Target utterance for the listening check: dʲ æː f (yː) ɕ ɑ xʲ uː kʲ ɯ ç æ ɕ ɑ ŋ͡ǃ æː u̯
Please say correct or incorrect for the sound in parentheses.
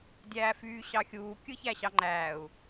correct